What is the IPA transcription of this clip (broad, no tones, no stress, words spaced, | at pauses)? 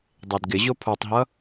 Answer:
dˤedɡɪʑo pʰotˤɦʌ